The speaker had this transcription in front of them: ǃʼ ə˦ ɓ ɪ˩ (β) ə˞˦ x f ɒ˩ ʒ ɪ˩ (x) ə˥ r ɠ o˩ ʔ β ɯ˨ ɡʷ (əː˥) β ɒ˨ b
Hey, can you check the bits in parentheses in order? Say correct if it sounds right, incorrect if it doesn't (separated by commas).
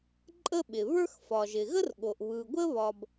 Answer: correct, incorrect, incorrect